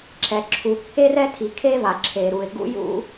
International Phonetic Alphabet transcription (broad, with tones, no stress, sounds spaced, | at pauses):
ǁʰ ɛ˩ ǁʰ u˩ kː e˥ r ɛ˥ tʰ i˩ kʰ e˥ v a˩ ǁʰ e˩ ɾ u˩ ɪ̯ ɡ ṵ˥ j ṵ˥